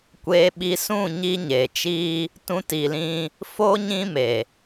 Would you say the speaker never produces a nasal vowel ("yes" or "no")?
no